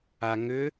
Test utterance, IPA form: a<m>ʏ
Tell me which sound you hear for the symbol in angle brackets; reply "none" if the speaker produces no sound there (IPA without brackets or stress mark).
ŋ